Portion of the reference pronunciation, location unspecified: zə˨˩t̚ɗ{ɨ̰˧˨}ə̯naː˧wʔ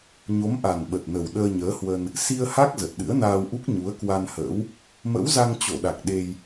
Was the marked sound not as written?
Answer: yes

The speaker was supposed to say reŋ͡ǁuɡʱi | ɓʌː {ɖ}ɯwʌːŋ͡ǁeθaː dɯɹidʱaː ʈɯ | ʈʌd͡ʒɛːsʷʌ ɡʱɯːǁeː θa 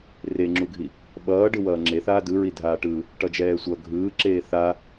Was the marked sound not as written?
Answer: no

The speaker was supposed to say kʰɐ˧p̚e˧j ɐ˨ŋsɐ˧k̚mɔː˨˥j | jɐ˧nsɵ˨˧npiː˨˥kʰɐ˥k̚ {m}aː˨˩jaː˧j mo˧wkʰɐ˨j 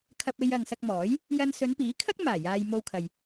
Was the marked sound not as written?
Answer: no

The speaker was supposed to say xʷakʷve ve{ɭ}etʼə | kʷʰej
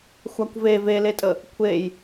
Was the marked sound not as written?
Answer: yes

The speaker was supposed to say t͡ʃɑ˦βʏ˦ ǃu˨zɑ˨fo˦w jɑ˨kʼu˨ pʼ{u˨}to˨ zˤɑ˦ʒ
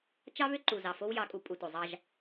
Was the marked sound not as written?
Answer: no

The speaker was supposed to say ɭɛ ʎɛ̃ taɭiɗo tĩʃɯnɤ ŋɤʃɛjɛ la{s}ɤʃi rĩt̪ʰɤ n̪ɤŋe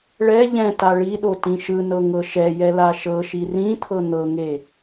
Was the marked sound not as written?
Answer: yes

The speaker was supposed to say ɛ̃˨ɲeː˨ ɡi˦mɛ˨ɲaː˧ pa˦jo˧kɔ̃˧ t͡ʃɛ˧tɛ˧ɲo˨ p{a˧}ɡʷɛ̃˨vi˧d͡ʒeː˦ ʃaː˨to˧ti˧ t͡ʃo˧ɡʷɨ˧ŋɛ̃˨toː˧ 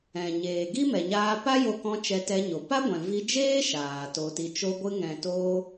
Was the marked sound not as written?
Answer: yes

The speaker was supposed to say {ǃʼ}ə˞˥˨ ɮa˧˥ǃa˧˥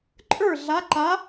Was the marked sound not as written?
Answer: no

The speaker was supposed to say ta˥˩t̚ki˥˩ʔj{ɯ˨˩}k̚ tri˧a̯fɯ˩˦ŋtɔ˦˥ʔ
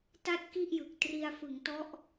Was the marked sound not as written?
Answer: no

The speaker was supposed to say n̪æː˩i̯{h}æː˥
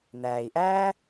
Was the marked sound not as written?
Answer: yes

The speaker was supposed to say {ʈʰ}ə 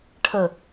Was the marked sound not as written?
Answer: no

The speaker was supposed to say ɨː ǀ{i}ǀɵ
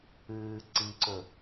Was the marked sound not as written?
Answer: no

